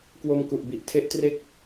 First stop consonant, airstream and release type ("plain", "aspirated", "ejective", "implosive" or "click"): plain